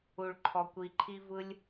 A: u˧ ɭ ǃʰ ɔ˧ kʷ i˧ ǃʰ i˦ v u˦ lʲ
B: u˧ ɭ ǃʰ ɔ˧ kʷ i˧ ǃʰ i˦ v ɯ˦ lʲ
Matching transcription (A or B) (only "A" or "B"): B